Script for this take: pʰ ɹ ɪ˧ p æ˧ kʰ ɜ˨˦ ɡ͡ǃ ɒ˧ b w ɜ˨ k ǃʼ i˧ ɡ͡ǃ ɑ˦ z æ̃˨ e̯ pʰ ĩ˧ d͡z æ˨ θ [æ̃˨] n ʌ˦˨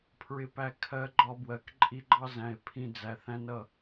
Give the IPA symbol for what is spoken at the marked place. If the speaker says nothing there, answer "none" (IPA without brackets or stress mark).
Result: æ̃˦